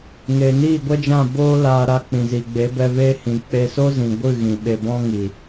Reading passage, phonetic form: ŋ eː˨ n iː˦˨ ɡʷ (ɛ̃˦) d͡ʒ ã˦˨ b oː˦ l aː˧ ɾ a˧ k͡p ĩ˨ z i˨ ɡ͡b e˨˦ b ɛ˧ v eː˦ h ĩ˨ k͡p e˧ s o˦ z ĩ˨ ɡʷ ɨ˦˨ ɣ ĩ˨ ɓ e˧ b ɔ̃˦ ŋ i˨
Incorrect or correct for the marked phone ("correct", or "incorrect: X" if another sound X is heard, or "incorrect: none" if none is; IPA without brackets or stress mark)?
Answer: incorrect: ɛ˦